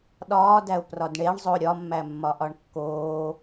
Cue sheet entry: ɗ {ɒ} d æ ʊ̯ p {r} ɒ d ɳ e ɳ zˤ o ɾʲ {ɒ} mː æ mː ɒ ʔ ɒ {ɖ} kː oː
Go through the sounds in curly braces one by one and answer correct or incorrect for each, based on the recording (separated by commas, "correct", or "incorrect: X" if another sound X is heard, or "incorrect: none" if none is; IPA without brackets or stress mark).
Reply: incorrect: ɒː, correct, correct, incorrect: ɳ